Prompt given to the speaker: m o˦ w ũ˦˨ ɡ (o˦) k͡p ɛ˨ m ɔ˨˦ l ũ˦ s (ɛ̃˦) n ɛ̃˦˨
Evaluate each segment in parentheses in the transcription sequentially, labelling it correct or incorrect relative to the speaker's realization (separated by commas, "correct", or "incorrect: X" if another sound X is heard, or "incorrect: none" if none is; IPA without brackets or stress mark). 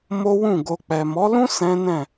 incorrect: o˧, correct